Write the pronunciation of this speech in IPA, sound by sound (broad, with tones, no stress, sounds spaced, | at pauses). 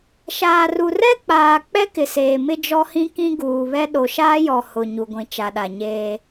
ʃ aː˨ r u˨ r ɛ˦ k͡p aː˨ k͡p ɛ˦ k ɪ˨ s eː˨ m ɪ˦ d͡ʒ ɔ˦ h ĩ˦ k ĩ˦ ɡ uː˨ β ɛ˦ ɗ o˨ ʃ aː˦ j ɔ˨ h ʊ˨ ɲ u˨ ɡʷ ĩ˨ t͡ʃ a˨ ɗ a˨ ɲ eː˦